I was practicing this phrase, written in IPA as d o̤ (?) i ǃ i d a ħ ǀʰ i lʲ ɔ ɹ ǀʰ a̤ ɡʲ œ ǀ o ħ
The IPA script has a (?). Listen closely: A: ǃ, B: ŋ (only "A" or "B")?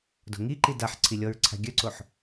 B